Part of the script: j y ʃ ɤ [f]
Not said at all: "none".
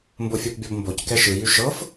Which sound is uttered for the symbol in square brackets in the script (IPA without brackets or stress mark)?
f